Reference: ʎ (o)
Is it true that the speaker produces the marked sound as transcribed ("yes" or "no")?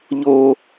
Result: yes